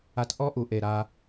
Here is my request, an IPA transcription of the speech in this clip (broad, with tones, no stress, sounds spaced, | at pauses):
a˧ t ʔ ɔ˦ ʔ u˨ ʔ e˦˨ ɾ a˦